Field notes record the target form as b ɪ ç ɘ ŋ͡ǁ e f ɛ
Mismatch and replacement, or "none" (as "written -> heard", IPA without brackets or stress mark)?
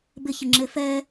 none